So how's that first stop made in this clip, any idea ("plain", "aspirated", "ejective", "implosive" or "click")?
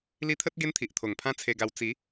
aspirated